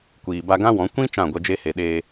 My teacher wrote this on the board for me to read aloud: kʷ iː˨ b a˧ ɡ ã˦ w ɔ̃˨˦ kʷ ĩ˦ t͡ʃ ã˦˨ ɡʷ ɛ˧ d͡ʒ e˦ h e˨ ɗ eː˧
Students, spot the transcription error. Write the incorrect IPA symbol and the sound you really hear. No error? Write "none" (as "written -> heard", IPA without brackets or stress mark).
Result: none